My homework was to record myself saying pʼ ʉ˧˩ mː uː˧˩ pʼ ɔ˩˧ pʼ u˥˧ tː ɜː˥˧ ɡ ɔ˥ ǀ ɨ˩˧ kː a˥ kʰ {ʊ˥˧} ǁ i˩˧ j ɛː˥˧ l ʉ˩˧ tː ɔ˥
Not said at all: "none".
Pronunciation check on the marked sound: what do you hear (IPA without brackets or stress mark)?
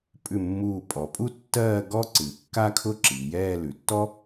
ʊ˥˧